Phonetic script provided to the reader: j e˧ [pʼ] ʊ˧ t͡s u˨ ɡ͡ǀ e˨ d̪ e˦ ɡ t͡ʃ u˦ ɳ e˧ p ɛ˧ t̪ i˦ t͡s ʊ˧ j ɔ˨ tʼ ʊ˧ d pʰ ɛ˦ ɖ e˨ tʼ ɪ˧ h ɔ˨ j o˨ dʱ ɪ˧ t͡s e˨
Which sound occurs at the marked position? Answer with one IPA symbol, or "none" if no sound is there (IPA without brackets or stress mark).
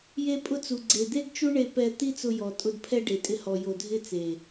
pʼ